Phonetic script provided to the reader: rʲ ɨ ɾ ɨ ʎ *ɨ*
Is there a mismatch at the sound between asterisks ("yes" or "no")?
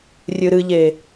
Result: yes